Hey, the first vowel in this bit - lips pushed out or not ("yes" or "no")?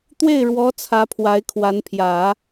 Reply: no